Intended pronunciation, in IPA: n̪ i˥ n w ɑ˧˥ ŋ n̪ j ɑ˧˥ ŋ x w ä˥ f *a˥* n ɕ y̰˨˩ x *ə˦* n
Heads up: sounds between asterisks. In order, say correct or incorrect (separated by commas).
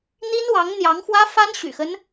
correct, correct